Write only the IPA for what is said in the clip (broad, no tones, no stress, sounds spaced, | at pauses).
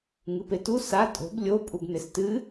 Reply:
ŋ ɨ p e t u s a tʼ o̤ b lʲ o pʼ u b n e s t ɨ